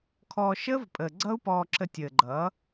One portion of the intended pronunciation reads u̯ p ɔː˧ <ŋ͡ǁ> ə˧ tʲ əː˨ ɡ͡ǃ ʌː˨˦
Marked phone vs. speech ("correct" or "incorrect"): incorrect